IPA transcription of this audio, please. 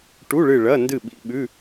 ʈ u˧˥˧ ɭ ɨ˦˨ ɭ ɐ˧˥˧ n d ɨ˦˨ ɓ ḭ˧˥˧ ɓ ʉ˧˥˧

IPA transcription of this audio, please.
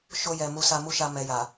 ʃ o˧ j ɛ˨ m u˧ s a˧ m u˦ ʃ a˧ m ɛ˨ j a˨

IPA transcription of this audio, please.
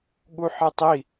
ɠ u ħ e tˤ i

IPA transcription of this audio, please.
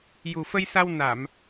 j u˨˩ f ə˧ j s a˧ w n a˨˩˨ m

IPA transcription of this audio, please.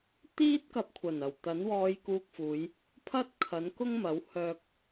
t̪ iː˥ t̚ k ɐ˧ p̚ kʷʰ ɐ˨˩ n ɐ˨˩ w t̪ ɐ˨˥ n w ɔː˧ j k uː˧ k̚ f uː˨˧ j | pʰ ɐ˥ t̚ kʰ ɐ˨˥ n k ʊ˥ ŋ m ɐ˨˥ w h œː˧ k̚

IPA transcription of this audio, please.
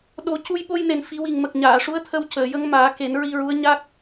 ɗ o˨˩˦ c u˧ j ɓ o˧ j n e˨˩ n f i˨˩˦ w i˨˩ ŋ m ə˨˩ k̚ ɲ aː˨˩˨ ʂ u˧˥ ə̯ t̪ʰ ə˧ w c əː˨˩˨ j ə˧˥ ŋ m aː˨˩˦ k e˨˩˦ n ɹ i˧ ɹ u˧˥ ə̯ ɲ a˦˥ k̚

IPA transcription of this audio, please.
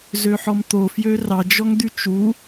z ø ħ ɔ m t̪ o f j ø r ɑ d͡ʒ ɔ ŋ d̪ y t͡ʃ u

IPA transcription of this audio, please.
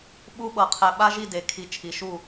ɓ u˥ ɓ ɤ˧ qʰ ɛ˧ ɓ a˥ ʒ i˥˧ d e˧ kʰ i˧ t͡ʃʰ i˧˩ ʃ u˥˧

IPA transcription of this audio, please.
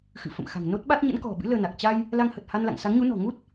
x ɨ̰˧˨ f ə̰˧˨ m x a̤˨˩ ŋ n o˦˥ t̚ ɓ a˦˥ t̚ ɲ ə̰˧˥ n k ɔ̤˨˩ ɓ ɨ̰˧˥ l əː˧ n a˨˩ k̚ t͡ɕ a˧ j | l a˧ ŋ h ə˨˩ t̚ h a˧ n l a̰˧˨ ŋ s a˨˦ ŋ ɲ u˨˦ n ɔ̤˨˩ ŋ u˦˥ t̚

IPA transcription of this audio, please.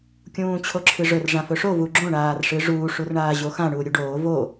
kʲ ũː t͡ɕʰ o ǁʰ ɨ ʐ ɵ r ʐ ã f ɵ ʂ o v u ɡ͡ǁ õ ɳ aː r ʂ ɨ ʐ uː ʂ u r ɳ aː ʑ o x ã ɳ uː ɾʲ u ɖ oː v o

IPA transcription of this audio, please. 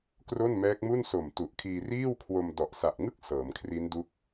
k r o˥˩ n m ɛː˦˥ k̚ m u˥˩ n s o˨˩ m t u˨˩ ʔ kʰ iː˧ r iː˥˩ w kʰ w o˧ m d ɔ˨˩ ʔ s a˨˩ ʔ ŋ ɯ˥˩ k̚ s ɤː˩˦ m kʰ r i˦˥ n d u˦˥ k̚

